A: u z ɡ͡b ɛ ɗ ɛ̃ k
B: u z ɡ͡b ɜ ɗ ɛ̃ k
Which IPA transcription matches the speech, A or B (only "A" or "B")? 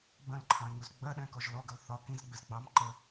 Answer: B